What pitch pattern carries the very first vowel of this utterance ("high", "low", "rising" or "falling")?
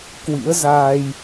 rising